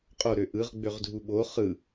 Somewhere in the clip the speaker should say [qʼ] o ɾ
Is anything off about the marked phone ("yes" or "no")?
no